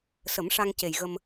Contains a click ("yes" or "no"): no